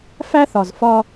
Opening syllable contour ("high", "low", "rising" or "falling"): high